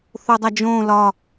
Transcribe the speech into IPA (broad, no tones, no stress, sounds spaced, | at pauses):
θ o dˤ æ d͡ʒ õ l ɒ